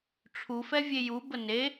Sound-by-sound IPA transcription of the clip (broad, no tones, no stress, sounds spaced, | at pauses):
ʈ͡ʂʰ u f ɛ vʲ e j u b ə n e